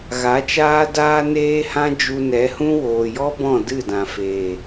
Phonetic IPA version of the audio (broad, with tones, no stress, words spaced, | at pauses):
ɣa˨˦t͡ʃaː˦daː˦ neː˦hã˦ d͡ʒu˧nɛ˨˦hũ˦ woː˨jɔ˦bɔ̃˦˨ dɨ˦˨dã˨feː˨